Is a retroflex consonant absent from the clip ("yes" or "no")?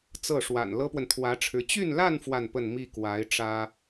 no